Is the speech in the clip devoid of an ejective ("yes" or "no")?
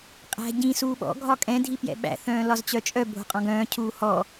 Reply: no